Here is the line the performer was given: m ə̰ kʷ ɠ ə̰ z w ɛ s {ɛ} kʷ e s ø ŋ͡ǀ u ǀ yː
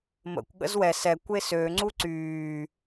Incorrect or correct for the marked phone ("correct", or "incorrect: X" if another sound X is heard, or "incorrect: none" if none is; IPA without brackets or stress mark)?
correct